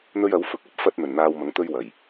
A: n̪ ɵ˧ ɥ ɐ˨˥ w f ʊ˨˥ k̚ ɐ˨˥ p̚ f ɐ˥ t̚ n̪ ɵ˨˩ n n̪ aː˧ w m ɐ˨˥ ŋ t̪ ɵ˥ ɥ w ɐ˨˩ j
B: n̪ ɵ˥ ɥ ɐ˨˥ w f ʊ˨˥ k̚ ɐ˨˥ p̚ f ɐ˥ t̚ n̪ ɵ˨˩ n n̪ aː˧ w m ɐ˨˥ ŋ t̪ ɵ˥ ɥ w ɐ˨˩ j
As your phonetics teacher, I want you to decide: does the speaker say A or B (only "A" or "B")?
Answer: B